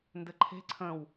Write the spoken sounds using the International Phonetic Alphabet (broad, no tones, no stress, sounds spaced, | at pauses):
n d ɘ ǃʰ e̤ ǀʰ ə̃ w